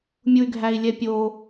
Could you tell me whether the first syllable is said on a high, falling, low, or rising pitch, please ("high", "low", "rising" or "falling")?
low